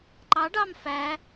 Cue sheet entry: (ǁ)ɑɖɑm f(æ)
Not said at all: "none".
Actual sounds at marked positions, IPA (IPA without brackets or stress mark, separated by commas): ǃ, æ